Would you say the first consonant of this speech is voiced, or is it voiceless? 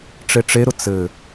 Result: voiceless